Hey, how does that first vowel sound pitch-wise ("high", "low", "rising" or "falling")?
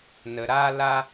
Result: low